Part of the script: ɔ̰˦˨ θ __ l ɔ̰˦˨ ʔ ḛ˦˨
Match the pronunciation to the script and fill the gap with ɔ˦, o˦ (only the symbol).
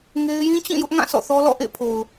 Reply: ɔ˦